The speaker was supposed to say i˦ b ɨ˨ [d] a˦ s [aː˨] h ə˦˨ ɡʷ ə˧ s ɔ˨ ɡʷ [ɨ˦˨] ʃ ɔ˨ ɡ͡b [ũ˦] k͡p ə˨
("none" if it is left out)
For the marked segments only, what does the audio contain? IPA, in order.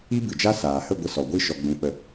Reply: d͡ʒ, aː˨, ɨ˦˨, ũ˨

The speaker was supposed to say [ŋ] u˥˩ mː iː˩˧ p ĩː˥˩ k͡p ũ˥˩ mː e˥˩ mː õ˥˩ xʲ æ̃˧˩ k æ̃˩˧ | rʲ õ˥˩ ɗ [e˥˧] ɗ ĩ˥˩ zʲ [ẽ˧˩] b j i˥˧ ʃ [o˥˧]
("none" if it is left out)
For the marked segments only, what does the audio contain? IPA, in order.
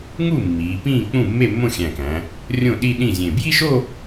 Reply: ŋ, i˥˧, ẽ˧˩, o˥˧

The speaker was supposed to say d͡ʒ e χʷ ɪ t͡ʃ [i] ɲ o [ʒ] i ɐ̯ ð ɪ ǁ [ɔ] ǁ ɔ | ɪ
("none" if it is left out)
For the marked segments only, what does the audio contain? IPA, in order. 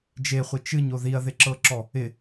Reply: ɨ, ð, ɤ

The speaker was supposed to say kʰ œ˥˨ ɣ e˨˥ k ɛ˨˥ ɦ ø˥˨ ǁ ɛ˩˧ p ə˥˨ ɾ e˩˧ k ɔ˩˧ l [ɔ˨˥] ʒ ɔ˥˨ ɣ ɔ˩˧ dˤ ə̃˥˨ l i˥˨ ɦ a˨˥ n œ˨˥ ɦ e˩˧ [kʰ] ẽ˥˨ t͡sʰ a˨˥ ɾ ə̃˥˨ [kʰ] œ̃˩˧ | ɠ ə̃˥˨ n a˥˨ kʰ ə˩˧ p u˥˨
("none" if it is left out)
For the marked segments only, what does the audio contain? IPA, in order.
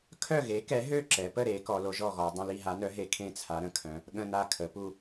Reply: o˨˥, kʰ, kʰ

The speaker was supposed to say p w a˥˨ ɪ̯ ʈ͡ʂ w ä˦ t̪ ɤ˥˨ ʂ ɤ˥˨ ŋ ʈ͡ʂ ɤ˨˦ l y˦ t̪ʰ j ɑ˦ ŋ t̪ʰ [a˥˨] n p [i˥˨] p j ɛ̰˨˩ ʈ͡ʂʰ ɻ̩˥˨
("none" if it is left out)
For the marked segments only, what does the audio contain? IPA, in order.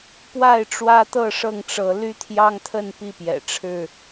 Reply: ə˥˨, i˥˨

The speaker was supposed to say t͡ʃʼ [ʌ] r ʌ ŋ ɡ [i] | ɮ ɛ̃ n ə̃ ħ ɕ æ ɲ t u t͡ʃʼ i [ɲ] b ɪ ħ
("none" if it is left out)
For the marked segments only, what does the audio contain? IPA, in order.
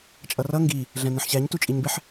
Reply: ʌ, i, ɲ

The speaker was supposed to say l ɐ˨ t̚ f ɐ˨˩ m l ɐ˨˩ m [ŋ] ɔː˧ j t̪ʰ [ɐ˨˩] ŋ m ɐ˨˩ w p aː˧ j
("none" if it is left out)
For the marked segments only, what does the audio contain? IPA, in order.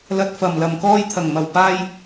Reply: k, ɐ˨˩

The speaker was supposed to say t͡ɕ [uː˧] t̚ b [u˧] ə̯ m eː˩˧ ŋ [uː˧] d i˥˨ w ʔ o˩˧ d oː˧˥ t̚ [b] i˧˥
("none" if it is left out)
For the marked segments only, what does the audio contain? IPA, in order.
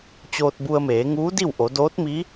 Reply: oː˧, u˧, uː˧˥, m

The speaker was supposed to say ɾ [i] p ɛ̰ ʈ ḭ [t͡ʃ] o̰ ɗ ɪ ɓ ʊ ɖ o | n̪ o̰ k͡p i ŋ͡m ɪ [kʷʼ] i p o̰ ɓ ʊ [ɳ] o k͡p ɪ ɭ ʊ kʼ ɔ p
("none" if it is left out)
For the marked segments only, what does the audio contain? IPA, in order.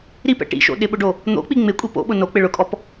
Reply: i, ʃ, kʷʼ, n

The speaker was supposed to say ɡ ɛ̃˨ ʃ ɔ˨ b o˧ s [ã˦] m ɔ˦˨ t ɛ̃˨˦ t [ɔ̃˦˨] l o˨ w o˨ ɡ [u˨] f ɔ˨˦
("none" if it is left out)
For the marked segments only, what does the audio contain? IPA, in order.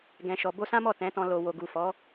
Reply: ã˦, ɔ̃˧, u˨

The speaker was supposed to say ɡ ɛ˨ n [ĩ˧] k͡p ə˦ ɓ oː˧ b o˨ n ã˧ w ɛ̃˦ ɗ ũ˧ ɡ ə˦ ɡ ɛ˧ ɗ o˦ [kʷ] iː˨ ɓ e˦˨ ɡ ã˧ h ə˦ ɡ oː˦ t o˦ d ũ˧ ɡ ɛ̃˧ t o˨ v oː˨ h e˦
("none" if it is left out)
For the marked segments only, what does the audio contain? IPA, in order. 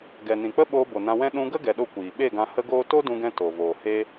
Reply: ĩ˨, kʷ

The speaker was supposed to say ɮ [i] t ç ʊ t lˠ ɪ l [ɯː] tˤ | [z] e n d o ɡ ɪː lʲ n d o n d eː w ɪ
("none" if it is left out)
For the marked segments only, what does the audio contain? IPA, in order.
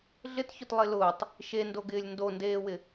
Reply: ɪ, ʊː, ʃ

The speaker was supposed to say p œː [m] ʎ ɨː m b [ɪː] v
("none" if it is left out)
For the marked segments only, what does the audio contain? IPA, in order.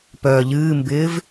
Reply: none, ɪː

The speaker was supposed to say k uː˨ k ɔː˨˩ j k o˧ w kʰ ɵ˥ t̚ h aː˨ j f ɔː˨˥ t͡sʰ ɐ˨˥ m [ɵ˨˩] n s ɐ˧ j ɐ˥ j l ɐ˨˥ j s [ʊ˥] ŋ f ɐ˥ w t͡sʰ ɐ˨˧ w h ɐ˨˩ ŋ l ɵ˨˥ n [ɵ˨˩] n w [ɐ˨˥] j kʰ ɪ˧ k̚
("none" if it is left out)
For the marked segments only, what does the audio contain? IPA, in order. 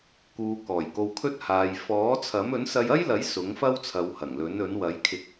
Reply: ɵ˨˥, ʊ˨˥, ɵ˨˥, ɐ˨˥

